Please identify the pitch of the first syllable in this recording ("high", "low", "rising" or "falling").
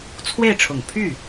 falling